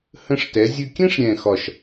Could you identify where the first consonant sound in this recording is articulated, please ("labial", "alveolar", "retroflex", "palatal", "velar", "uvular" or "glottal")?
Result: glottal